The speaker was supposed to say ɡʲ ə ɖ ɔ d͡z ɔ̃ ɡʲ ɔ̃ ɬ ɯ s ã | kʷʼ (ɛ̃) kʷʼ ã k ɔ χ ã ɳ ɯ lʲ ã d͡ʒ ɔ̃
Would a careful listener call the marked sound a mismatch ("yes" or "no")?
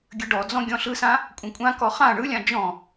yes